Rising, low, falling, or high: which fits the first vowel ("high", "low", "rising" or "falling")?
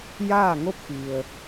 falling